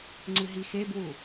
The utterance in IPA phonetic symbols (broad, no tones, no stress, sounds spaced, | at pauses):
ŋ͡ǀ ɨ ɦ i x e b w u